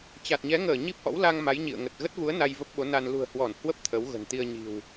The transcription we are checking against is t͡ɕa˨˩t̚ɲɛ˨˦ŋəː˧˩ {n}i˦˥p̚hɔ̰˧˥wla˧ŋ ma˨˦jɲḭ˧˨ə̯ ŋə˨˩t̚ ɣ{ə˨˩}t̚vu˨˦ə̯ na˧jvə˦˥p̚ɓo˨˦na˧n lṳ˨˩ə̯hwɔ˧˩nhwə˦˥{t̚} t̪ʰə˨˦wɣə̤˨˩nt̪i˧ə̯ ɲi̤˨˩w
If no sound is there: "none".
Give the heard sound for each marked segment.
ɲ, ə˦˥, p̚

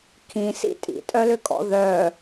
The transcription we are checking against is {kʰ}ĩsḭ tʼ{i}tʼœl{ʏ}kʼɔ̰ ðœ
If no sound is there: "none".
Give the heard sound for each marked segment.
kʰ, ḭ, ʏ

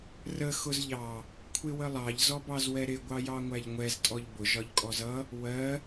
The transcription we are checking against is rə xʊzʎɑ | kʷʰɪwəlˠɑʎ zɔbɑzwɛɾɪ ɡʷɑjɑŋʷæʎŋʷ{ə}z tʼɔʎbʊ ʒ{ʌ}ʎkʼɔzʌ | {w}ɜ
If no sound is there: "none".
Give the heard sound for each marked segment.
ɛ, ɒ, w

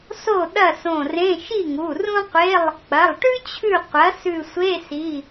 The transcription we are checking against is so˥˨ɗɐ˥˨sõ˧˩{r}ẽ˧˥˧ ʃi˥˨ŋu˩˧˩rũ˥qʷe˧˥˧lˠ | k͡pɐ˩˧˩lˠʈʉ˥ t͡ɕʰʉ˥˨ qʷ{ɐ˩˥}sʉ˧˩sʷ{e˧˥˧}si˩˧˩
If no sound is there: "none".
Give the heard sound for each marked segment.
r, ɐ˩˥, e˧˥˧

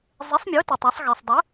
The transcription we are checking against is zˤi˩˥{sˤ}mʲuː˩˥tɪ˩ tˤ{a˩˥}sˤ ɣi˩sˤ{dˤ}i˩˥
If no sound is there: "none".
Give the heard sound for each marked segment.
sˤ, a˩˥, dˤ

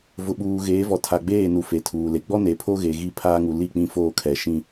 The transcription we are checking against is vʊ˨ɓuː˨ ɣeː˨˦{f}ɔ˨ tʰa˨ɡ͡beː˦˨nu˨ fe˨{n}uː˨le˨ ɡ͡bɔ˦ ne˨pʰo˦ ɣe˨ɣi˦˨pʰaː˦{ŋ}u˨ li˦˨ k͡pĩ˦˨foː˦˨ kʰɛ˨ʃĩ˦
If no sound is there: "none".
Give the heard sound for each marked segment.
v, tʰ, ŋ

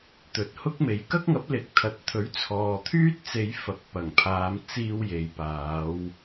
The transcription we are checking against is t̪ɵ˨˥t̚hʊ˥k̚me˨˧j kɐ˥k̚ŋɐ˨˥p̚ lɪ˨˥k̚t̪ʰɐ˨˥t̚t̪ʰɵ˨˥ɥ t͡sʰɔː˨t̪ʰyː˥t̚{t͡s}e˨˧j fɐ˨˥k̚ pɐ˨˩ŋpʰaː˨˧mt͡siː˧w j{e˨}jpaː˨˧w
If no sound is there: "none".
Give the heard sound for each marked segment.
t͡s, e˨

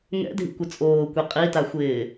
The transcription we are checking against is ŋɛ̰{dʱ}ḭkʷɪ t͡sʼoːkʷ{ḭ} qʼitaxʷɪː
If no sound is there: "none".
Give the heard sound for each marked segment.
dʱ, i

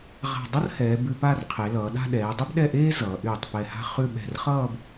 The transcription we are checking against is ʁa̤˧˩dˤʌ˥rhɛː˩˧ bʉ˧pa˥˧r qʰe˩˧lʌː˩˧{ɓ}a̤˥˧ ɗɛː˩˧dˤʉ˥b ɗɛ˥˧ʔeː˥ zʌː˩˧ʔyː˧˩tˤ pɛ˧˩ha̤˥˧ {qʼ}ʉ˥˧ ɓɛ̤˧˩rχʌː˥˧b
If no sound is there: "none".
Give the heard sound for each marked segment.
ɗ, χ

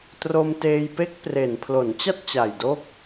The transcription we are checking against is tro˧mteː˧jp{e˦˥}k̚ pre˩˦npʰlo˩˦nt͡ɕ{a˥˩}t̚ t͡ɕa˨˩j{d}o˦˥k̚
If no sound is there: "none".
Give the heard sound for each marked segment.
e˦˥, a˥˩, d

